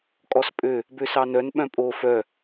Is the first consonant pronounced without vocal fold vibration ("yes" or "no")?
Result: yes